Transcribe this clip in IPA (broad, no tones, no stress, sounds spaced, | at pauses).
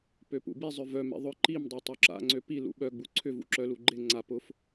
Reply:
p ø p ṵ b i zˤ œ v œ m ḛ ðˤ ʊ ǃ i m dˤ a tˤ y ǁ a̰ ŋ͡ǀ ø p i l ṵ ɓ œ ɡ͡b u ǀʰ ʏ v ṵ ǁ œ l u ɡ͡ǃ ɪ ŋ͡ǀ a p ʊ f